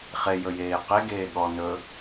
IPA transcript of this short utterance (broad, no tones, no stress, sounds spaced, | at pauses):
χ e j ɵ j eː q e ɡ eː ɠ ɔ n ɵ